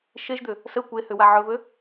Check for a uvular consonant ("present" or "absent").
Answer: absent